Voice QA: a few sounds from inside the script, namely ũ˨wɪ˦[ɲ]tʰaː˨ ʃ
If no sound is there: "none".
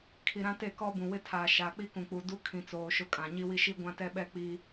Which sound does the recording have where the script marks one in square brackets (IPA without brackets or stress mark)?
none